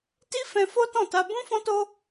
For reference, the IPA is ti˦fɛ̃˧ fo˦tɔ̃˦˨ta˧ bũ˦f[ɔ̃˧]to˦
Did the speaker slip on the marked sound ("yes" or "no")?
yes